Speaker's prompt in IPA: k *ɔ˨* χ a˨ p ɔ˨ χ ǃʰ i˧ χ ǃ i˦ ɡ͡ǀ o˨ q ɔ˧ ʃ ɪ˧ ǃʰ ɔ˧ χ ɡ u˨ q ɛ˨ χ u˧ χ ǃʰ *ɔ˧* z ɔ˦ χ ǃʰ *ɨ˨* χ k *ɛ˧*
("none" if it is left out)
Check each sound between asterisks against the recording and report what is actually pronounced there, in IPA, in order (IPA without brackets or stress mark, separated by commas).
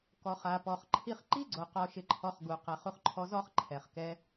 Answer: ɔ˨, ɔ˧, ɛ˨, ɛ˧